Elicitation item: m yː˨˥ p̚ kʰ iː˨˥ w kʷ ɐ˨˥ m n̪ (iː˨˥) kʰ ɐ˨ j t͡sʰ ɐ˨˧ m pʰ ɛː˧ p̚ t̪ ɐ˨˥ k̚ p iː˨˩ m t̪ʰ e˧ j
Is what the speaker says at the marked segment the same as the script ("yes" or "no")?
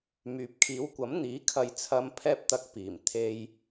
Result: yes